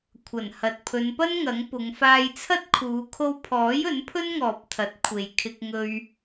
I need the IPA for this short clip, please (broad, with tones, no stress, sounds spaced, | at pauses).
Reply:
kʷʰ ɐ˨˩ n h ɐ˨ t̚ pʰ ɵ˨˧ n p ɐ˥ n ŋ ɐ˨˥ ŋ p ʊ˨˧ ŋ f aː˧ j t͡sʰ ɐ˥ t̚ kʰ uː˨˧ kʰ o˧ w pʰ ɔː˨˥ j ɵ˨˥ n pʰ ɵ˥ n ŋ ɔː˨ p̚ t̪ʰ ɐ˨˥ t̚ kʷʰ e˧ j kʰ ɪ˥ k̚ ŋ ɵ˥ ɥ